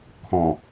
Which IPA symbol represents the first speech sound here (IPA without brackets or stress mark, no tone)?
kʰ